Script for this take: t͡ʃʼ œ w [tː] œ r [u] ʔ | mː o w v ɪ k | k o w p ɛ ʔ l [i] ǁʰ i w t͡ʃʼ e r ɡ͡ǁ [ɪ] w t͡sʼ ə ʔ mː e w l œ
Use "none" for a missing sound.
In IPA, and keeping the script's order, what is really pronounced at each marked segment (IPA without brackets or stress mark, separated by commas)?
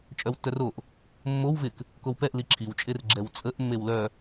tː, o, i, ɛ